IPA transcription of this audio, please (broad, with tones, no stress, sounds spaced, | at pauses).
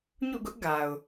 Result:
ɲ ṵ˦˨ ɡ ʊ˦ ʔ ɡ a˨ ʊ̯